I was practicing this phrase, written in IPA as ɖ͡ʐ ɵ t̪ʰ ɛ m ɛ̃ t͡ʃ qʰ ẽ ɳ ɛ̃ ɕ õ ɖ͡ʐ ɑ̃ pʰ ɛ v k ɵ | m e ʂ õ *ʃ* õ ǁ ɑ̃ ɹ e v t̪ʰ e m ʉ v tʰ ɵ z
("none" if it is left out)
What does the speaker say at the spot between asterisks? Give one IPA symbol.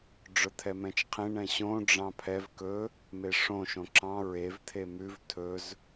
ʃ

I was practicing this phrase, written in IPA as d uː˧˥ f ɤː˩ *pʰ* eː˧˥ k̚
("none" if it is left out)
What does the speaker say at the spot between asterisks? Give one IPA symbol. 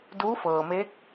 m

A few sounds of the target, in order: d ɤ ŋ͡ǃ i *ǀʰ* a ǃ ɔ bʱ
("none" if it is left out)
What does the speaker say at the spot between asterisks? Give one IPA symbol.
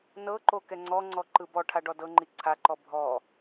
ǀʰ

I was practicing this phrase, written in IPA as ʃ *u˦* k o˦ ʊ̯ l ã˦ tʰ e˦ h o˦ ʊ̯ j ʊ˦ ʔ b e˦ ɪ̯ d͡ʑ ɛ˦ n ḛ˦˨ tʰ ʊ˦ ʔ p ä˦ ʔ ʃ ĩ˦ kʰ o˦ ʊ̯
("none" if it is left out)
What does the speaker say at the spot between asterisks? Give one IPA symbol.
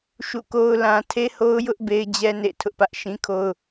ṵ˦˨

